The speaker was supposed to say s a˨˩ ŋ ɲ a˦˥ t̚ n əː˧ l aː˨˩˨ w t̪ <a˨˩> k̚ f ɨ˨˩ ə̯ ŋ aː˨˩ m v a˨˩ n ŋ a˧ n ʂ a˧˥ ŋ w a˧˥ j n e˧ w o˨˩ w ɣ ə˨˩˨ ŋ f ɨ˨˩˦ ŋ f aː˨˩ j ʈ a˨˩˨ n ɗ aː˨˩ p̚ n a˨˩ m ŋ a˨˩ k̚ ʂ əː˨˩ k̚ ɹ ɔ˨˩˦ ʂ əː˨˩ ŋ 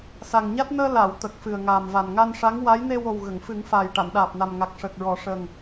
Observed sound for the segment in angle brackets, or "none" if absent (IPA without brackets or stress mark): ə˨˩